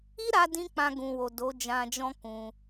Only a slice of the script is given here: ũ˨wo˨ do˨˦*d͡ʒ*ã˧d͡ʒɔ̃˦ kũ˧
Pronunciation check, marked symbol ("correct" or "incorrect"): correct